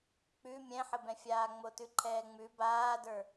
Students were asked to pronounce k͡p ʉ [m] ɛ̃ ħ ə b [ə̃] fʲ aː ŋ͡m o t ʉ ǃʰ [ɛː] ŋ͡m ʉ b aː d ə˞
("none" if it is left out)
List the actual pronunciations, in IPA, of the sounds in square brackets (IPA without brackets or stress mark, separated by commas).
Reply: mʲ, ɛ̃, ɛː